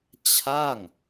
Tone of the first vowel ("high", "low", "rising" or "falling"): falling